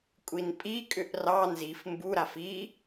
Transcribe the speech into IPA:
kʷʼ i n pʼ i kʼ ʏ ʔ r ɑ n z i f m b u ɾ a f i

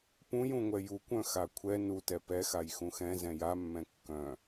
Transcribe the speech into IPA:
p ũ j ũ ŋʷ ɛ j u kʷ œ̃ x a kʷʰ ɛ n u t ɛ p ɛ x a j x ũ x ɛ̃ z ɛ̃ j a mː ɛ̃ kː œ̃

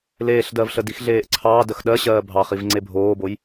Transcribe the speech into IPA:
l eː ɬ d ɜ v ɬ ə d i x ɮ eː ʔ ǀʰ ɑː d ə x ɗ ɜ ɕ ɜː bʱ ɑ χ i v ŋ͡ǀ e bʱ oː b o j

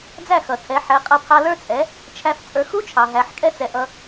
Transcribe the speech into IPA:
d͡z æ˥˩ x ʌ˩ tʰ ɛ˩˥ ħ ɛ˩˥ qʼ ʌ˧ pʰ ɑ˧ l ə˞˥ t͡sʼ ɛ˩˥ | t͡ʃʰ æ˧ f t͡sʼ ə˞˩˥ x u˥ t͡ʃʰ ɑ˩ ɦ æ˩˥ ħ kʼ ɛ˥ t͡s ɛ˩˥ ʔ ʌ˧

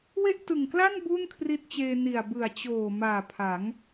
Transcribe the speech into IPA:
w e˥˩ ʔ t ɯ˨˩ ŋ k l a˥˩ n b u˥˩ n kʰ r i˦˥ t̚ t͡ɕ eː˧ n i˨˩ a̯ b ɯ˨˩ a̯ t͡ɕ oː˨˩ m aː˨˩ pʰ a˩˦ ŋ

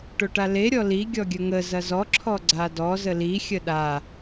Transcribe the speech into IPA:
ʈ o ʈ a l e ɾʲ ɔ l i ɡʲ ɔ ɡʲ ə ŋ ə z ɐ z ɔ ǁʰ ɔ ɡ͡ǀ a d ɔ z ə l i xʲ ə ɗ a

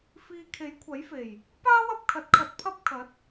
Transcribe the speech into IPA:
f iː˨ kʰ e˨˥ j kʷʰ ɐ˨˥ j f e˨˩ j | p aː˥ w ɐ˧ p̚ kʰ ɐ˨ t̚ kʰ ɐ˧ t̚ pʰ ɐ˥ p̚ kʰ ɐ˨˥ t̚

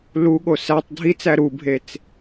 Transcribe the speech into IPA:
l u ɠ o s æ tˤ dʱ i t͡s æ ɾ u bʱ e t͡s

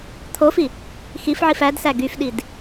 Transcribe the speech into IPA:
t̪ʰ o f i | x i f ʕ i f æ d s æ ɡ y f ɗ i d

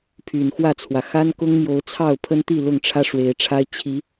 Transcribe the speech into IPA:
pʰ y˨˩ n x w ä˥˨ t͡sʰ w ä˩ x a˦ n k ʊ˦ ŋ m j o˨˦ ʊ̯ t͡sʰ ɑ˥˨ ʊ̯ pʰ ə˦ n t̪ i˥˨ l ʊ˥˨ ŋ ʈ͡ʂʰ ä˦ ʂ w e˨˦ ɪ̯ ʈ͡ʂʰ a˦ ɪ̯ t͡ɕʰ i˨˦

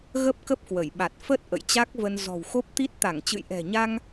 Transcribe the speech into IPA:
ɣ ə˦˥ p̚ k ə˦˥ p̚ k w ə˧˩ j ɓ a˨˩ t̚ f ə˦˥ t̚ ʔ ə̰˧˨ j t͡ɕ a˦˥ k̚ v ə˧ n z ɔ̤˨˩ w x o˦˥ p̚ t̪ i˦˥ t̚ t̪ a˧˩ ŋ t͡ɕ ɨ̰˧˨ j ʔ ɛ̤˨˩ ɲ a˧ ŋ

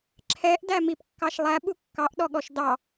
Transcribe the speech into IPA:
ǁʰ ɛ ʔ d æ m i p kː ɑ ʃ lˠ æ ɓ u kː ɑ ʔ ɗ ɔ ɠ ɔ ʃ d ɑ

